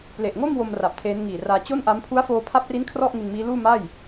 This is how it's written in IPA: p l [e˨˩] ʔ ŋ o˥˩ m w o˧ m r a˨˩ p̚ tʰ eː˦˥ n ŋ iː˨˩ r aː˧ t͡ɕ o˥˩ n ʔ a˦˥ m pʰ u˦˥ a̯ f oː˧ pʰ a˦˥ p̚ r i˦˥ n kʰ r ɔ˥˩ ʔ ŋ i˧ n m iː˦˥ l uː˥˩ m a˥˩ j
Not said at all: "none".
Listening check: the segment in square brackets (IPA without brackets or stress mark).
e˨˩